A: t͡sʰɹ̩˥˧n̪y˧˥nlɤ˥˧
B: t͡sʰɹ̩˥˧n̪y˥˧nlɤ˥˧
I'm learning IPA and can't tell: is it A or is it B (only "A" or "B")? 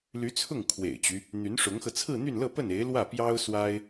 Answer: B